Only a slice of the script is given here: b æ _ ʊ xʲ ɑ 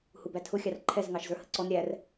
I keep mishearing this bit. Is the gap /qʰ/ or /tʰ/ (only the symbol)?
tʰ